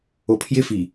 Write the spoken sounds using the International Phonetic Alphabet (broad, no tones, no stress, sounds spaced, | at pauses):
o pʰ j ɪ f i